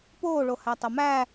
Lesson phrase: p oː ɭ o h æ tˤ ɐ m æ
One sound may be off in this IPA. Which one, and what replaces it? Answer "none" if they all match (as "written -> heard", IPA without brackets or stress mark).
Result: none